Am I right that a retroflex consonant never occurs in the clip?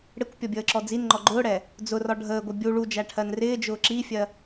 no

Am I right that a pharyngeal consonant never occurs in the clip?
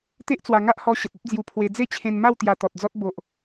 yes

